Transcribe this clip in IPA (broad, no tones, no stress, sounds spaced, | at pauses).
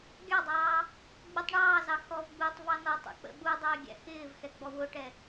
ɡʲ ɑ dˤ ɑː | ɡ͡b u tˤ ɳ ɑː z ɑ x ɔ v ɡ͡b uː tˤ v ɑ n ɔ tˤ ṵ k͡p ə̰ ɓ u dˤ ɪː ɡʲ æ̰ x ɪː v x ɛ ɡ͡b ɔ w ʊ ʈ ɛ